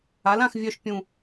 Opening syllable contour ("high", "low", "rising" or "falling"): rising